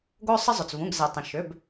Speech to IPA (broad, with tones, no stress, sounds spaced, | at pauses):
ɡ o˦ sˤ ə˦ zˤ ʏ˩ t͡s v ũ˩˧˩ ɡ z e˩ tˤ ə̃˩ ʃ ʏ˩˧˩ b